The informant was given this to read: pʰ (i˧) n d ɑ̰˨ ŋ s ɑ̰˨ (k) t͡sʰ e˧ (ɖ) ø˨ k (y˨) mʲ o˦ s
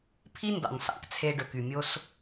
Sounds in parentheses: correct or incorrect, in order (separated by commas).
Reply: incorrect, correct, correct, correct